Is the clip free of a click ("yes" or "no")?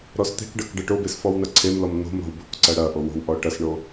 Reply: no